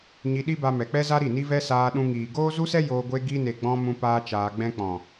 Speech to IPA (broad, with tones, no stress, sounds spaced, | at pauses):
ɲ i˧ ɗ i˦ b a˧ m ɛ˨ k͡p ɛ˦ z a˦ ɾ i˦˨ n i˦ v ɛ˦ s aː˧ ɗ ũ˧ ŋ iː˨ ɡ oː˦ z u˦ s ɛ˦ j oː˧ ɡʷ e˧ ɡ i˧ n e˨ ɡ͡b ɔ̃˧ m ũ˦ p aː˦ t͡ʃ aː˧ ɡ͡b ɛ̃˦ k͡p ɔ̃˨